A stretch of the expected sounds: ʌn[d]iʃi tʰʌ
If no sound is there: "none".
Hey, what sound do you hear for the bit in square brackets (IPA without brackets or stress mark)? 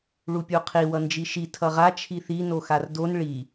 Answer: d͡ʒ